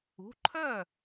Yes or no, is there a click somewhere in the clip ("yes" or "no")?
yes